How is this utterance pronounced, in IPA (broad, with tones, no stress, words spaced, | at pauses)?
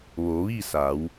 ʋo˩˧ʋi˥˨sa˩˧w